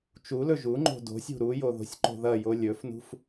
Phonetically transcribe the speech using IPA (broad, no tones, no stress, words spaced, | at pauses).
t͡ʃulɵ ʒuŋ͡ǃo̤ do̤sʲṳ ɾujo ðo̤sʲǃo̤ðɐjo lʲɵfnṳf